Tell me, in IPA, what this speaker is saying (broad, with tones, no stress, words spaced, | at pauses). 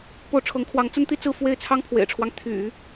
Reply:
po˥˩ʊ̯ ʈ͡ʂʰɤ˧˥ŋkʰwɑ˧˥ŋt͡sə˥n t̪i˥t͡sɹ̩˥˧ fwe˥˩ɪ̯t͡sʰɑ˥ŋpʰwḛ˨˩ɪ̯ʈ͡ʂʰwɑ˦ŋ t̪ʰy̰˨˩˦